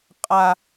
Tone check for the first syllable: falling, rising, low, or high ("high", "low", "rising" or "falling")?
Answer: high